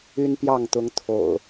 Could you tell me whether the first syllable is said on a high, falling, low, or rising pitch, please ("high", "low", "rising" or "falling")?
high